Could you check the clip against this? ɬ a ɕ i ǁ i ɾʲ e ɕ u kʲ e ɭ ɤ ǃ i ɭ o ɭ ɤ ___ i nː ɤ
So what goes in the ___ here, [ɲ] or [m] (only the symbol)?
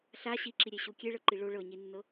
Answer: ɲ